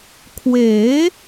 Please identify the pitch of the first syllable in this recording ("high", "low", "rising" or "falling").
rising